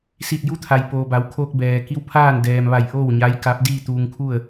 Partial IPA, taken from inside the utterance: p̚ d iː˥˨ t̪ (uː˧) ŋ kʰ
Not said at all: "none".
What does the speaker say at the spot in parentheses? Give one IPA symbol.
uː˧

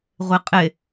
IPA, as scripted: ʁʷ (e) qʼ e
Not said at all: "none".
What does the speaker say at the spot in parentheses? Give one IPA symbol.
e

